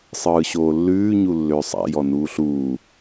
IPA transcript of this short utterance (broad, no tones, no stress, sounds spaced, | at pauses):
sˤ ɯː ɕ oː lː ʉː ɲ u lː ʏː sˤ a̰ j ɔ n uː ɬ uː